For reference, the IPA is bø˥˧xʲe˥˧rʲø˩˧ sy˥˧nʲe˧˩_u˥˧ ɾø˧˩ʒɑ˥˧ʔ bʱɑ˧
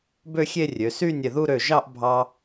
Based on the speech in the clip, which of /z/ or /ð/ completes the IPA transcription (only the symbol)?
ð